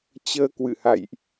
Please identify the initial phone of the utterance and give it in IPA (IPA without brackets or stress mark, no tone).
t͡ɕ